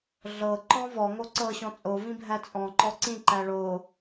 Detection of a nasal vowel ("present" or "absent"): present